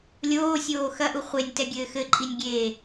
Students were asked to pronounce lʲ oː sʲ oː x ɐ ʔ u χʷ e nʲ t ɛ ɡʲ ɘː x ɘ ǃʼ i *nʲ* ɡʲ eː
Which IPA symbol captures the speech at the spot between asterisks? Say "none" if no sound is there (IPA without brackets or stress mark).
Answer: nʲ